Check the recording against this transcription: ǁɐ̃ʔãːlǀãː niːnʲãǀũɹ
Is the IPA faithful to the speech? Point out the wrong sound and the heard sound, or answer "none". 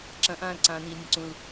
ɹ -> l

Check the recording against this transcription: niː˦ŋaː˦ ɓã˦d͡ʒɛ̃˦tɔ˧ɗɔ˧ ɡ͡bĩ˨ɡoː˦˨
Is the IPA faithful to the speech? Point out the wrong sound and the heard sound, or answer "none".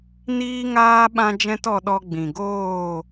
none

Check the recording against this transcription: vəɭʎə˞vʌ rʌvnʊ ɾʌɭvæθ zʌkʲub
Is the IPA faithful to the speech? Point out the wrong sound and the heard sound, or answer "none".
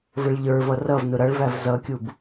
θ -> v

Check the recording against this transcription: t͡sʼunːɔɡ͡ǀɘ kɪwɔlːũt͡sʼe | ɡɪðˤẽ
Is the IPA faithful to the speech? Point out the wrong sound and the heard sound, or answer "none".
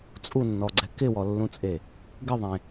ɘ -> ɛ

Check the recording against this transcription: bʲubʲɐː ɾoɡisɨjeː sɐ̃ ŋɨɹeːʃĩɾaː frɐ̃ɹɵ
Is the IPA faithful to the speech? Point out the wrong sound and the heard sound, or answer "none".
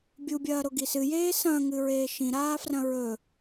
none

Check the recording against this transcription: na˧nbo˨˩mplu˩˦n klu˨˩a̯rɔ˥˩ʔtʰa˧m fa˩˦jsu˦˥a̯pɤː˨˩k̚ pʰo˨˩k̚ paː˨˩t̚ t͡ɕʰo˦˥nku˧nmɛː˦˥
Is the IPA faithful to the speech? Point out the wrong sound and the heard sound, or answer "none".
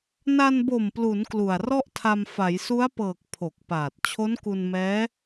none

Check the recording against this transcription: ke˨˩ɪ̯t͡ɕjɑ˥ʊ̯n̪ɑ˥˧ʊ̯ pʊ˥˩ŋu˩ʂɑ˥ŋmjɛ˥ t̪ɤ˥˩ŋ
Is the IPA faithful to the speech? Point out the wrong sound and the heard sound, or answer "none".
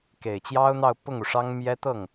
none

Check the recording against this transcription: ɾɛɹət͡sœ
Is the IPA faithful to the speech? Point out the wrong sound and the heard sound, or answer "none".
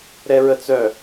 none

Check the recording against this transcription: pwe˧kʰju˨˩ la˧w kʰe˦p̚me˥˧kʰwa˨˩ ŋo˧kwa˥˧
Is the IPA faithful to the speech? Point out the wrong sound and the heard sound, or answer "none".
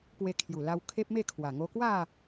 none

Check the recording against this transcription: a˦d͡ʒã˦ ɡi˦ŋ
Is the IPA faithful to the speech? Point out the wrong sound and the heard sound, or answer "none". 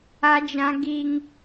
none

